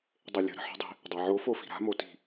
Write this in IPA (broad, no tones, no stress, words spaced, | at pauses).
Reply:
dˤelʲə̤ ɾə̤ħə̤dˤi̤ | dˤaʕo fofi̤ɾa̤ moti̤